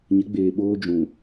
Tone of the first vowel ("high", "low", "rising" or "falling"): rising